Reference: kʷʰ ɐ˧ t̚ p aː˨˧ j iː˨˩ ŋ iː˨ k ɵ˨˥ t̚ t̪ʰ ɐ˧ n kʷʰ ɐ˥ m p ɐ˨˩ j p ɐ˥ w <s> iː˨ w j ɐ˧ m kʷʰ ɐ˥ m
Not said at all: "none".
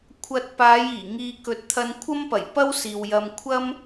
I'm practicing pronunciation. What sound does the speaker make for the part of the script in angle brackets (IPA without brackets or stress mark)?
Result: s